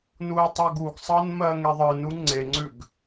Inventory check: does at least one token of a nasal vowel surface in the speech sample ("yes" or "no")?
no